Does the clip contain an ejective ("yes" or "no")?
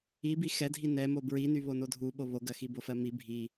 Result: no